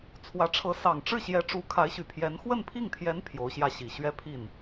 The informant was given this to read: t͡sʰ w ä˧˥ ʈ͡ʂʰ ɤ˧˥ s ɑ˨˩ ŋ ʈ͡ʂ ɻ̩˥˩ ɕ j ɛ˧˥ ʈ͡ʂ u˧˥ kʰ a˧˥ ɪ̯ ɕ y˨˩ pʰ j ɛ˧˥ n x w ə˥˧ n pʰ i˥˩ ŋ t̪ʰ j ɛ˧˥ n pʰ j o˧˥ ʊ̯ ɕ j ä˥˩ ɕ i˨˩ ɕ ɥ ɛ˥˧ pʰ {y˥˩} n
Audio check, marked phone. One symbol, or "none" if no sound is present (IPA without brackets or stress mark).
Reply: i˥˩